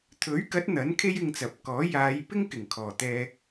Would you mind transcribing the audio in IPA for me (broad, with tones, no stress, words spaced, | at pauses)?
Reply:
t̪ʰɵ˨˥ɥkɐ˨˥t̚ n̪ɐ˨˥n kʰe˥jɪ˧ŋt͡sɐ˨p̚kɔː˨˥ jaː˨˧j pɪ˥ŋkɪ˨˩ŋkʰɔː˨˩ t̪ɛː˧